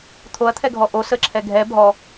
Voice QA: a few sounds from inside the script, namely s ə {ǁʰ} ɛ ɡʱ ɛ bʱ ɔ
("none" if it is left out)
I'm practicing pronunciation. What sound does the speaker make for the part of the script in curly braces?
ǁʰ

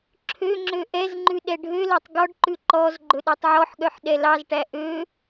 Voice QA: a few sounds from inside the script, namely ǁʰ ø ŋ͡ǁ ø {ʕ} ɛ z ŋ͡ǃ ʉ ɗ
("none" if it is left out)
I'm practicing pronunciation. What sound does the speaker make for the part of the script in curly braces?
ʔ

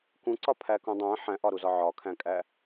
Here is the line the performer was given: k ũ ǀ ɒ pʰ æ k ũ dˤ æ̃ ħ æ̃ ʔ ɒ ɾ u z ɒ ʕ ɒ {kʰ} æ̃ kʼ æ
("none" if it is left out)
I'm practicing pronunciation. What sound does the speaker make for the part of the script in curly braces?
kʰ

